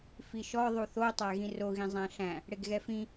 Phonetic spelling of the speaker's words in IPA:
f i ʃ ɔ ðˤ u θ o tˤ æ ɣ ĩ r o ɣ ĩ zˤ æ̃ ɬ æ̃ | ɽ e ɡ ɣ ɛ f ĩ

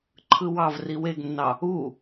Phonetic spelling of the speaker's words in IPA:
ǃʰ ɯ w ɑ v r i w e ɡ nː ɑ | u

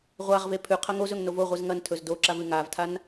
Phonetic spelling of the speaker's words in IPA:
ʁʷ a ʁ v e pʰ ʉ qʰ ɐ ŋ o z ɵ ŋ n o v o ʁʷ ɨ z ŋ ɐ n tʰ ɵ z d o ǁ a v ɨ ŋ a v tʰ a n

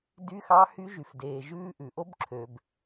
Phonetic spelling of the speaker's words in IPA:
d y˦˥ x ɑ˦˥ h y˦˥ ʒ y˨ f d eː˨ ʒ ʉː˦˥ ʔ ʉ˨ ʔ o˦˥ b ǁʰ ø˨ b

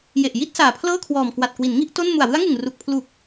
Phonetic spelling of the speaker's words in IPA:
j e˨˩ ʔ j i˥˩ t̚ s aː˨˩ pʰ l ɤː˥˩ kʰ w ɔː˨˩ m k w a˨˩ t̚ k w i˩˦ n ŋ i˥˩ ʔ t o˥˩ n m u˨˩ a̯ w ɯ˦˥ a̯ ŋ ɯ˨˩ ŋ r u˨˩ k̚ pʰ l u˨˩ k̚

